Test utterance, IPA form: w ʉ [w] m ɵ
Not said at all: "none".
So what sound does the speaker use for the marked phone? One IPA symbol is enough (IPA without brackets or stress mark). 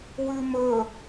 none